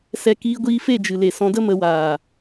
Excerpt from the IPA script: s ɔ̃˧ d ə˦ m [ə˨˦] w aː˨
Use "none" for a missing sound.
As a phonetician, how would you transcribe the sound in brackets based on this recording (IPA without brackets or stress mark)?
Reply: ə˨˦